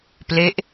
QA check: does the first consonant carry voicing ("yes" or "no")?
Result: no